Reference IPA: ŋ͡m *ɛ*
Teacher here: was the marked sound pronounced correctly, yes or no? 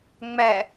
yes